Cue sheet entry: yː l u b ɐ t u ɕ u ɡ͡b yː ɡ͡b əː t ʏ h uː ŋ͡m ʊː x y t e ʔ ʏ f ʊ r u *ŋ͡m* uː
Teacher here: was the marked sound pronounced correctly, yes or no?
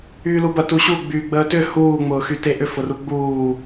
no